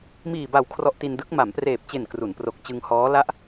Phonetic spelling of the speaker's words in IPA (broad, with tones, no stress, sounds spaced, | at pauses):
m iː˨˩ b a˨˩ w kʰ r ɔ˦˥ ʔ t i˧ n d ɯ˦˥ k̚ m a˩˦ m p r eː˨˩ p̚ t͡ɕ e˨˩ n k r u˩˦ n p r o˨˩ k̚ t͡ɕ ɯ˧ ŋ h ɔː˦˥ l a˦˥ ʔ